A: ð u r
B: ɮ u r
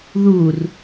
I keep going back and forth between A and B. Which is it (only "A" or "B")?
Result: A